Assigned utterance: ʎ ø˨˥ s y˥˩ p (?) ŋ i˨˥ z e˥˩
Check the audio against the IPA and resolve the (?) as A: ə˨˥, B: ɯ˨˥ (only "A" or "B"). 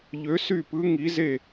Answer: B